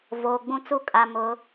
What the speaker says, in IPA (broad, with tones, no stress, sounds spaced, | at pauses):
v oː˨ ɡ͡b ũ˦ t͡s u˦ kʼ a˨ m ʊ˨˦